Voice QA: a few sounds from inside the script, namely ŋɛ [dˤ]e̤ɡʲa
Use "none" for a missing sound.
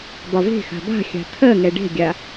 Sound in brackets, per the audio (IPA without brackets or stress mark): ɖ